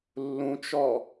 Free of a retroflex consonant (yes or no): yes